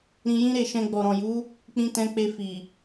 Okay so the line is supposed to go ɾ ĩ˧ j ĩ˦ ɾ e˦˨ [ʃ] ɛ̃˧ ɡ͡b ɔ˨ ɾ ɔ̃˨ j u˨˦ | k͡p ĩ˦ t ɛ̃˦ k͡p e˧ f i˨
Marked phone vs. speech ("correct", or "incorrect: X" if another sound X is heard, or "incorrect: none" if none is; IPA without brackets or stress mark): correct